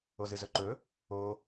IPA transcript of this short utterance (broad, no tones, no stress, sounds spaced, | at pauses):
o z ɨ z ɵ ǃ ɵ | o